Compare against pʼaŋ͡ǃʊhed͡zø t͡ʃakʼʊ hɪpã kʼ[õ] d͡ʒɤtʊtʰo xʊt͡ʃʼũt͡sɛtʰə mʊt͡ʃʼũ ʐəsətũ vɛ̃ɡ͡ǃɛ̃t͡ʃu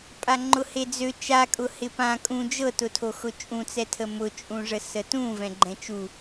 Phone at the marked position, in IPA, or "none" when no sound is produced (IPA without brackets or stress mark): ũ